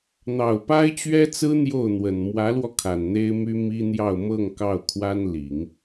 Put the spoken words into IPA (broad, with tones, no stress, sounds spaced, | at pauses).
n̪ ɑ˨˩ ʊ̯ p a˥ ɪ̯ t͡ɕ ɥ ɛ˥ t͡s ɹ̩˥ n̪ j o˥˩ ʊ̯ n̪ w ə˨˩ n m w ä˧˥ l w ɔ˧ kʰ a˨˩ n n̪ e˥ ɪ̯ m y˥ m i˥ n̪ j ɑ˥˧ ʊ̯ m ɤ˥˧ ŋ k ɑ˥˩ ʊ̯ kʰ w a˥ n l i˨˩˦ ŋ